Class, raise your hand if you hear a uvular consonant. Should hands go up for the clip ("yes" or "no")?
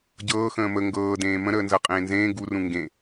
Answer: yes